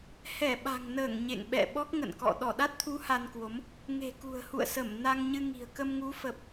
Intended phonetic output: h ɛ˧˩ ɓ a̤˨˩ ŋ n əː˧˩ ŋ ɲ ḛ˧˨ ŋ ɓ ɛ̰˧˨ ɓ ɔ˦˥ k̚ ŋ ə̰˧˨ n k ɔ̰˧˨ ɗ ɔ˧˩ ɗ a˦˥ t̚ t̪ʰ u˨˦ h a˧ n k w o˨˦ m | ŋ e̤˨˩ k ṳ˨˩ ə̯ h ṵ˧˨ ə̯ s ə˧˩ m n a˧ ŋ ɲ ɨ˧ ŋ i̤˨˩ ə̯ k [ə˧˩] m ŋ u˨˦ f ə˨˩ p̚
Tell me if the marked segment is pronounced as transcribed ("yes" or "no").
no